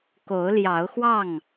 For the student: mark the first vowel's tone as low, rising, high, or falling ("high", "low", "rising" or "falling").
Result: rising